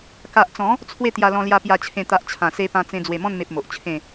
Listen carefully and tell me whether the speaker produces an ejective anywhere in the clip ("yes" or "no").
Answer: no